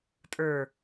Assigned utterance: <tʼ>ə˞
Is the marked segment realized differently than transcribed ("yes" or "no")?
no